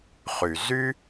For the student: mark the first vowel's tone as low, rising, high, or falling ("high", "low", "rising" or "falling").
low